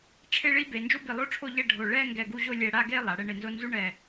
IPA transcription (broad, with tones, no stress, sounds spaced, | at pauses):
ʈ͡ʂʰ e˥˧ ɭ i˥ b e˩˧ n d͡ʒ o˥ b i˧˩ lˠ o˥ ʈ͡ʂʰ o˥˧ ʎ ɛ˥˧ ɖʱ o˧˩ ɭ ɛ˥˧ ŋ ɡ ɛ˧˩ ɡ u˥˧ ʑ o˥˧ lʲ ɛ˧ ɽ a˥˧ ɡ e˥˧ lˠ a˩˧ ɽ ɛ˥˧ ɳ e˧ n z o˥ n z u˥ ɳ ɛ˧˩